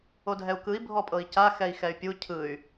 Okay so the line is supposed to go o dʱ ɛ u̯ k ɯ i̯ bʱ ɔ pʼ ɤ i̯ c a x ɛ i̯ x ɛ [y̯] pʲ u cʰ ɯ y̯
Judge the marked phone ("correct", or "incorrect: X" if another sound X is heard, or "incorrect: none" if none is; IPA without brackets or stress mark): correct